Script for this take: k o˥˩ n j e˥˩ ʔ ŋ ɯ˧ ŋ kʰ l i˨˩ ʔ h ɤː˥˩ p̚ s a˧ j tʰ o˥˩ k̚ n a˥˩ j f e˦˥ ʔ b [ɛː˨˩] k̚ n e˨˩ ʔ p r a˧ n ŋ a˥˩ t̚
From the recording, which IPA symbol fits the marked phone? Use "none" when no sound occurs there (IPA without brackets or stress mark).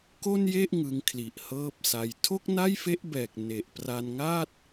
ɛː˨˩